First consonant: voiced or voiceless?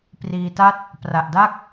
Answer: voiceless